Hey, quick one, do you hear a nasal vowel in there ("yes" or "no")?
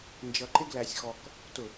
no